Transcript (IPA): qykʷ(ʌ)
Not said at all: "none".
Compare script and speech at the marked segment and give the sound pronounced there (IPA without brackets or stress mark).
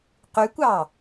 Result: ɑ